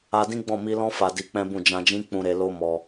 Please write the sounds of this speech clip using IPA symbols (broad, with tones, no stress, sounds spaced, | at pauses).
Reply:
a˧ d ĩ˦ ɡ͡b ɔ̃˦˨ m i˧ l ɔ̃˦ f a˧ d i˧ k͡p ɛ̃˦ b ũ˦˨ d͡ʒ ã˧ d͡ʒ ĩ˦ k͡p ũ˧ ɾ e˧ l o˦ m ɔ˧